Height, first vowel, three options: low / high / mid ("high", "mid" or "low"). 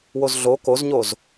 mid